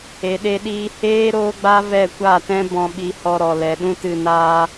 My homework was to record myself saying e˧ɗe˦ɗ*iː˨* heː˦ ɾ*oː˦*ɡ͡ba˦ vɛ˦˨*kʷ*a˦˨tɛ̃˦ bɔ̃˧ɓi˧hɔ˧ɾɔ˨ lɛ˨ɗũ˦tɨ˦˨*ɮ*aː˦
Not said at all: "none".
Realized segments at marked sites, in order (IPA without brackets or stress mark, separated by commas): iː˦, oː˦, kʷ, n